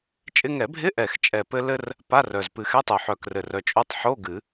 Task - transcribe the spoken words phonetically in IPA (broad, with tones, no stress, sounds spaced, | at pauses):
t͡ʃʼ ɪ˧ ŋ ɛ˨˩˦ bʱ ɪ˧˥˧ ʔ ɛ˨˩ x t͡ʃʼ ɛ˨˩ p ɘ˧ l ɘ˧ r | p a˧˥˧ r œ˨˩ z p ɨ˨˩˦ x ɛ˧˥˧ tˤ o˨˩ ħ œ˨˩ k r ɘ˨˩ r œ˨˩ t͡ʃʼ o˧˥˧ tˤ ħ o˧˥˧ ɡ ɨ˨˩˦